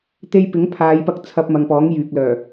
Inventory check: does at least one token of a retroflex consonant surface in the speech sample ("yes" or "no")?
no